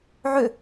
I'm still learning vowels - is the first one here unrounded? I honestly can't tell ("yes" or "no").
no